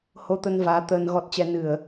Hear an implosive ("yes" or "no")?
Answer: no